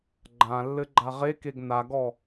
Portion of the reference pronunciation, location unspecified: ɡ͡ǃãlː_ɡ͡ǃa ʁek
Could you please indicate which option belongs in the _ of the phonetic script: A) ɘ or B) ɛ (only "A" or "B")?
A